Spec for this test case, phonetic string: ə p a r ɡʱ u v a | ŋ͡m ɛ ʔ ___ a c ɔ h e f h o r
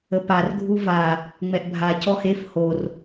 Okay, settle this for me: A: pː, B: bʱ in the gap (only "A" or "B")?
B